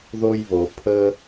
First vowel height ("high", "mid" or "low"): mid